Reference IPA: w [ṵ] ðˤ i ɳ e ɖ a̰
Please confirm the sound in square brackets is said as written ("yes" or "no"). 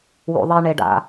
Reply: yes